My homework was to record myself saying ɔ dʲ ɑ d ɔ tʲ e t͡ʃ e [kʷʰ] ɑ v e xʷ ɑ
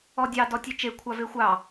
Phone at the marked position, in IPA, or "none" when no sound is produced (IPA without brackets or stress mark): kʷʰ